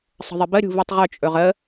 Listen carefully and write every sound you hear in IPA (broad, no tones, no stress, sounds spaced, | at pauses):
sˤ ə̤ ðˤ ə b ə ɾʲ ṳ v i tˤ ʁ ɵ t͡ʃʼ ɵ ʁ ə